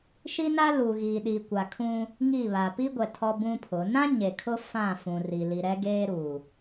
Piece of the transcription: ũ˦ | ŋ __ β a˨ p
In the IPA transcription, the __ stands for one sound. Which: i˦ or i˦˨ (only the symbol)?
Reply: i˦˨